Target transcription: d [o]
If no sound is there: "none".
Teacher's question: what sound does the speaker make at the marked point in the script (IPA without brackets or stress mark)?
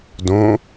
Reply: õ